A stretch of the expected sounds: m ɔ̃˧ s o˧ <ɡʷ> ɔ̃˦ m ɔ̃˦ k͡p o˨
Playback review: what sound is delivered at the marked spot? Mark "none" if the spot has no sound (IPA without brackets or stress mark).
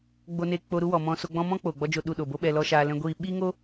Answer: ɡ͡b